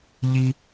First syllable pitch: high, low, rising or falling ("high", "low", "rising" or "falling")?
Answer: high